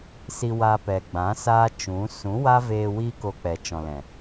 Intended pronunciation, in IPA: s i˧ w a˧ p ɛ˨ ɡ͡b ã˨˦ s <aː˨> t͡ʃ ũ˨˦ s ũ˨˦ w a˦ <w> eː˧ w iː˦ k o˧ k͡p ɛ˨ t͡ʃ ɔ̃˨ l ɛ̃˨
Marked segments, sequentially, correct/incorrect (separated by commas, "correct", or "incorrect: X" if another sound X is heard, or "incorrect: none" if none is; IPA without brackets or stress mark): incorrect: aː˦, incorrect: v